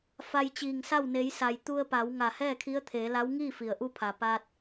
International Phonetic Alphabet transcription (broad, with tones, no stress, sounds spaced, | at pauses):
f a˧ j t͡ɕ iː˧˩ ŋ s a˥˨ w n e˩˧ j s a˩ j t̪ u˧ ə̯ p a˩˧ w ŋ a˧˩ h ɛː˥˨ kʰ i˧˥ ə̯ t̪ʰ eː˩˧ l a˧˥ w ŋ iː˥˨ f i˩ ə̯ ʔ u˧˥ pʰ a˩ p aː˧ t̚